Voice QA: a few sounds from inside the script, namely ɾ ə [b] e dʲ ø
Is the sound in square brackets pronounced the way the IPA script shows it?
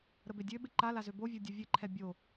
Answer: yes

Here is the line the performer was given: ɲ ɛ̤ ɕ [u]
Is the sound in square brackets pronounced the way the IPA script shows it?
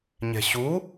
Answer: yes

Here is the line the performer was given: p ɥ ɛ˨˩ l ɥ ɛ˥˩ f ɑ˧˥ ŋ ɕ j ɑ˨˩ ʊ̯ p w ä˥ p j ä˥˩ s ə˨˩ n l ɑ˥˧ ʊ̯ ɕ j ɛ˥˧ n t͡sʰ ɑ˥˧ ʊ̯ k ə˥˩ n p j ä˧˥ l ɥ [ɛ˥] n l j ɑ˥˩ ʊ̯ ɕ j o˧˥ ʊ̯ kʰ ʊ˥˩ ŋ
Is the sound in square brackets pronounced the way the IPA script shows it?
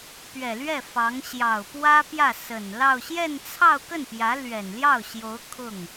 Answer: no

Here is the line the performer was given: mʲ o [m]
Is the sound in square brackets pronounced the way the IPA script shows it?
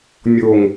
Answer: no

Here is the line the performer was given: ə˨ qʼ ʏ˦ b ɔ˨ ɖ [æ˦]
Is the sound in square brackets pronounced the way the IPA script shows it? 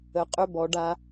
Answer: no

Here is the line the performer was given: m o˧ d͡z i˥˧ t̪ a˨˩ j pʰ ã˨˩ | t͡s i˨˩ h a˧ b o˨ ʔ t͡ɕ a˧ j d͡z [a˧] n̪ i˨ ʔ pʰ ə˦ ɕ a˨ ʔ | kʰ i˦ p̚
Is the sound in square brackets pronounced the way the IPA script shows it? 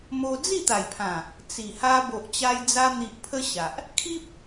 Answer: yes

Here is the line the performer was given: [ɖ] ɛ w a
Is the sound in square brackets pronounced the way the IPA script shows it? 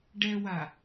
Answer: yes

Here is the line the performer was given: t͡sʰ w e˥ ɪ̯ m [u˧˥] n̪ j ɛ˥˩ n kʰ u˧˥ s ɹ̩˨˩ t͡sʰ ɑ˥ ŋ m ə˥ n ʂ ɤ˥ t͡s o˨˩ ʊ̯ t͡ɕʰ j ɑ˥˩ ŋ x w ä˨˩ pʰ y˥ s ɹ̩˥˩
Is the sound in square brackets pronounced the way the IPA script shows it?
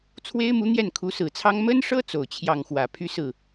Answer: yes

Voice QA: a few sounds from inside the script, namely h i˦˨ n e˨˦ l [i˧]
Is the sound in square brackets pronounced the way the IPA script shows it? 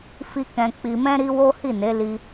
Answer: yes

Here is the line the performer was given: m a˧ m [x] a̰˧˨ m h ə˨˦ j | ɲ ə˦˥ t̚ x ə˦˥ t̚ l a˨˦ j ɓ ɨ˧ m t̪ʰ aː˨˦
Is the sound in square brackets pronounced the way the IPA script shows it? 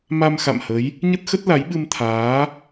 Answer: yes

